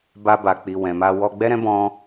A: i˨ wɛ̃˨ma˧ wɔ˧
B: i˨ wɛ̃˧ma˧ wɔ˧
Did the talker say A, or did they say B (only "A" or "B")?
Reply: A